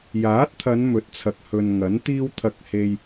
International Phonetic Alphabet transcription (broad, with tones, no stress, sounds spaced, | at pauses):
j aː˨˥ t̚ t̪ʰ ɐ˨˧ n m ɵ˨˥ t̚ t͡sʰ ɐ˨ k̚ h ɵ˨ n ŋ ɐ˨˥ n t̪ iː˥ w t̪ʰ ɐ˧ k̚ h e˥ j